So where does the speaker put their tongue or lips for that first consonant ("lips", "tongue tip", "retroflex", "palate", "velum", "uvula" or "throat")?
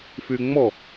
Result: lips